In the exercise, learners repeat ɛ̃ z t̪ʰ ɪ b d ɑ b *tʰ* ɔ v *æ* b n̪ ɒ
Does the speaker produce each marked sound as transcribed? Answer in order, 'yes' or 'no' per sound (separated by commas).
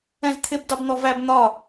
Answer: no, yes